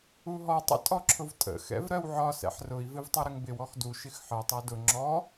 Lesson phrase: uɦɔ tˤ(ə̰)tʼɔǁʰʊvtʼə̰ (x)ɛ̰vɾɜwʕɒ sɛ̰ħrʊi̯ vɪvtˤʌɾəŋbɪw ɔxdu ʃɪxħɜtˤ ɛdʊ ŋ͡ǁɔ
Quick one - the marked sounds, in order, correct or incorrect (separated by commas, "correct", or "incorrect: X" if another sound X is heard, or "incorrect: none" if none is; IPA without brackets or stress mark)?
correct, correct